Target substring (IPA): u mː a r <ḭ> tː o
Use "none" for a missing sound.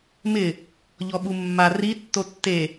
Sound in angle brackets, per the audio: i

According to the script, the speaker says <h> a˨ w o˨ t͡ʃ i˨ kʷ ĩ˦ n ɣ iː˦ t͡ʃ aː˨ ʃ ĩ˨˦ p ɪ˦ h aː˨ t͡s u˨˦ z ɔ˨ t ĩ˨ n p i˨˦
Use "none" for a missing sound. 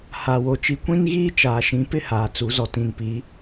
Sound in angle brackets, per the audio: h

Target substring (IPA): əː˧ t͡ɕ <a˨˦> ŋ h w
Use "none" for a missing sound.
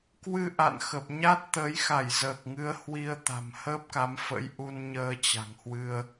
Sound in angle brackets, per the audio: a̤˨˩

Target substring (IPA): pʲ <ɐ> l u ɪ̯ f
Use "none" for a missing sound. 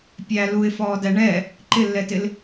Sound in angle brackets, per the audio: æ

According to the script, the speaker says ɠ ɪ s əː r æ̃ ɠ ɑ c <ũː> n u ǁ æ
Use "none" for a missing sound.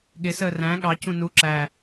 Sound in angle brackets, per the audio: ũ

